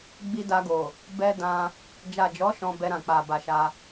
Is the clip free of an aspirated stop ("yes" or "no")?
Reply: yes